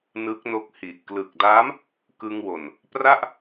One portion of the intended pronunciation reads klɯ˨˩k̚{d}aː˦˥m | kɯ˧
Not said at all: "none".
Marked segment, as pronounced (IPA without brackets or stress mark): d